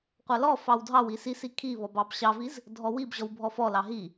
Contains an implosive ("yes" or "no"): no